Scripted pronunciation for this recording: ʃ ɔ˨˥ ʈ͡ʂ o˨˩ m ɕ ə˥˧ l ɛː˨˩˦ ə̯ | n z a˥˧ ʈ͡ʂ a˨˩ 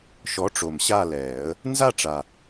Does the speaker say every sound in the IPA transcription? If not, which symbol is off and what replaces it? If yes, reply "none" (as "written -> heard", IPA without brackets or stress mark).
ə˥˧ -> a˥˧